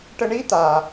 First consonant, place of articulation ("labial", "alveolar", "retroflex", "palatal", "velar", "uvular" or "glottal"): retroflex